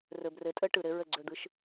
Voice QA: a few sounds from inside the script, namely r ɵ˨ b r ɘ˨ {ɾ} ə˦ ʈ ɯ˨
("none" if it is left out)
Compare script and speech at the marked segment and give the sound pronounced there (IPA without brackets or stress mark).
tʼ